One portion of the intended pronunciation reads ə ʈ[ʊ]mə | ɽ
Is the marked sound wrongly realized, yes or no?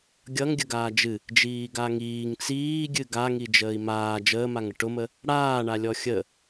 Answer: no